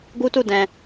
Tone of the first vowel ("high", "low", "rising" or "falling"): high